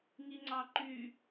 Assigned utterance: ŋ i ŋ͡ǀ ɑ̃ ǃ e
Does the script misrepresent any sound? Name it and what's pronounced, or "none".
e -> y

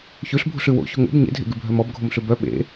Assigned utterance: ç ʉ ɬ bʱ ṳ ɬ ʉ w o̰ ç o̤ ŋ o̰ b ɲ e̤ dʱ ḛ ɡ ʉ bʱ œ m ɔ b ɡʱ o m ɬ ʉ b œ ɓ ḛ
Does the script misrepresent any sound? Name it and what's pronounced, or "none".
e̤ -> ḛ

